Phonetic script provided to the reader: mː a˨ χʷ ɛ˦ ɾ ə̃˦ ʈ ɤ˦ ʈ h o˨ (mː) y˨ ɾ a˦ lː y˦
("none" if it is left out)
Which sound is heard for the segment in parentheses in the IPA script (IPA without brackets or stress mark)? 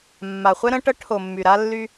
mː